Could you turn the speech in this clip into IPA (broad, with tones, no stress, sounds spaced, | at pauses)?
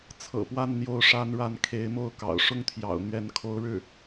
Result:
t͡sʰ ɤ̰˨˩ p w a˥˧ n n̪ j o˥˩ ʊ̯ ʂ a˥ n ɻ a˥˩ n kʰ e˧˥ ɪ̯ m o˥˩ ʊ̯ k ɑ̰˨˩ ʊ̯ ʂ ʊ˥˩ ŋ t̪ʰ j ɑ̰˨˩ ʊ̯ n̪ ɥ ɛ˧˥ n kʰ o˧˥ ʊ̯ ɻ ɻ̩˥˩